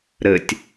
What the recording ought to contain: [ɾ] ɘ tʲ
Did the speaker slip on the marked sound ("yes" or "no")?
no